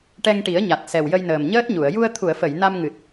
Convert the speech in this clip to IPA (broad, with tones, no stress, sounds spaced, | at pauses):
ʈ ɛ˧ ŋ ʈ i˨˩˦ ə̯ ɲ a˨˩ t̚ s ɛ˨˩ w j ə˧ j n əː˨˩ m ɲ əː˦˥ t̚ ɲ u˨˩˨ ə̯ j u˧ ə̯ t̪ʰ u˨˩˨ ə̯ f ə˨˩˨ j n a˧ m ŋ ɨ˨˩ t̚